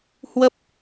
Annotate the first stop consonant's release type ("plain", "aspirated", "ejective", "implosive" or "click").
plain